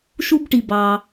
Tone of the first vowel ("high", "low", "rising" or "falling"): high